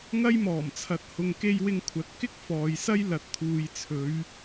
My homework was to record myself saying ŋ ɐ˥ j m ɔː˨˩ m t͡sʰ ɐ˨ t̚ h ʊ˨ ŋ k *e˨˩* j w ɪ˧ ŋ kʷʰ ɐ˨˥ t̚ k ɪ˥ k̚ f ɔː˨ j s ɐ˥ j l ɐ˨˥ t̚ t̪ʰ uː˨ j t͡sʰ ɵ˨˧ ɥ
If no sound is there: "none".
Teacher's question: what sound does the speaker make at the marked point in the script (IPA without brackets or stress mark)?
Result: e˧